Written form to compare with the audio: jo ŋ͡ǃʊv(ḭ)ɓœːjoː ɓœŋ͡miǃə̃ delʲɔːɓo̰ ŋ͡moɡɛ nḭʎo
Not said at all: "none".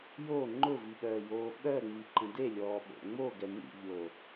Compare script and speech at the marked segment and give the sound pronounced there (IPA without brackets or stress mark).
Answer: i